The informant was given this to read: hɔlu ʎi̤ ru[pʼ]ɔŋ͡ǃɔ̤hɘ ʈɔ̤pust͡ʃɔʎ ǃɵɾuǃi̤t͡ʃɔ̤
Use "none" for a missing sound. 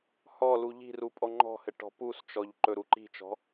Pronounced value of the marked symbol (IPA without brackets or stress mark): pʼ